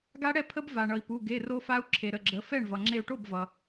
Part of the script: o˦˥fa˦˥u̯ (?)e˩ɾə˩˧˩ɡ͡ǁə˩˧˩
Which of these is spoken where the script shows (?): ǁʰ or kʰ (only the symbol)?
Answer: ǁʰ